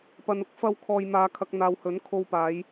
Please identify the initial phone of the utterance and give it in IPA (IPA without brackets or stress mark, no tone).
p